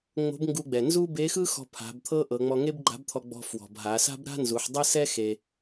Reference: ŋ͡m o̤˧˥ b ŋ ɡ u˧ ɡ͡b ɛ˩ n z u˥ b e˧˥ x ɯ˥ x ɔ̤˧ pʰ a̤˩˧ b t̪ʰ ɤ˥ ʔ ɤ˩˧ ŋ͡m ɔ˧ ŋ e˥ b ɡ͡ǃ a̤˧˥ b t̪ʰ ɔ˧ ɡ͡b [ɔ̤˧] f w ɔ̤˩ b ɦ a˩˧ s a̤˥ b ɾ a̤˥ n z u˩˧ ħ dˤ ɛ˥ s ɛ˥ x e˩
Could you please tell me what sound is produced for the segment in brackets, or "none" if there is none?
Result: ɔ̤˧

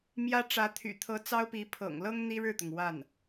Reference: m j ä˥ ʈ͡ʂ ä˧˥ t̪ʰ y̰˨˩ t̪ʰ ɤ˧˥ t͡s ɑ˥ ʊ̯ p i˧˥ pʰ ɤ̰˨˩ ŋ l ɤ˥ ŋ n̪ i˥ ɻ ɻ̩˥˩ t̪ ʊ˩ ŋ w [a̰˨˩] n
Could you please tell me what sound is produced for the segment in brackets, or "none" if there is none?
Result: a˥˩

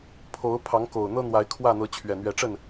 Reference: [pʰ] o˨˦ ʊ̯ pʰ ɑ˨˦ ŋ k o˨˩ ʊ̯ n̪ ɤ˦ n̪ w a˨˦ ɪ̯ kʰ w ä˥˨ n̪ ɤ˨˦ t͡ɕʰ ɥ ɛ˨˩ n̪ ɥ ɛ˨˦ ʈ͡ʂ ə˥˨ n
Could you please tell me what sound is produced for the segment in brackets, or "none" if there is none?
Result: pʰ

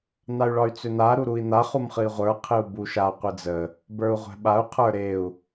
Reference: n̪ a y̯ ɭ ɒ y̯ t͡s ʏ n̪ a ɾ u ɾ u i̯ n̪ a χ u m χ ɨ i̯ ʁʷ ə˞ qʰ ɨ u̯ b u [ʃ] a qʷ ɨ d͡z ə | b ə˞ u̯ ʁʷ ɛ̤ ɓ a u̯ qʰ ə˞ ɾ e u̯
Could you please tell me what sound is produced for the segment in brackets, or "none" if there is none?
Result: ʃ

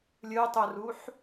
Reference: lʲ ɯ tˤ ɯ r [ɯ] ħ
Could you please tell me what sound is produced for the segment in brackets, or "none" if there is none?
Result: u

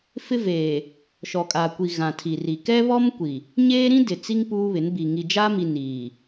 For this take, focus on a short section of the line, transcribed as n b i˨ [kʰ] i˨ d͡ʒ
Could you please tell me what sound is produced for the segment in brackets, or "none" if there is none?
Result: ŋ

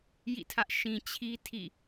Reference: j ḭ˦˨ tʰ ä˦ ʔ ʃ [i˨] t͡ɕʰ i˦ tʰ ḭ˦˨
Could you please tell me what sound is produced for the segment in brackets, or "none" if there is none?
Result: ĩ˨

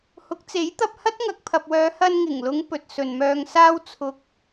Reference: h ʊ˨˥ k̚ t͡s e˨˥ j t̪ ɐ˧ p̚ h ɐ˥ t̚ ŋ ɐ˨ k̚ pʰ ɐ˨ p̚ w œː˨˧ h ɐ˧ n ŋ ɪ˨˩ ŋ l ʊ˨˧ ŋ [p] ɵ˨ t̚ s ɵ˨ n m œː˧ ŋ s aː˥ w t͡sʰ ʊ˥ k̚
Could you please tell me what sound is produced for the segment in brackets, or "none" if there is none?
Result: p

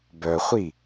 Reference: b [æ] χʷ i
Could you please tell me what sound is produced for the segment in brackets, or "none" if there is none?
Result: œ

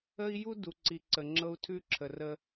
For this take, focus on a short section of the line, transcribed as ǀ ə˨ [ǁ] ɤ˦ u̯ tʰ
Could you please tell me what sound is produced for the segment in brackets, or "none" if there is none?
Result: ŋ͡ǁ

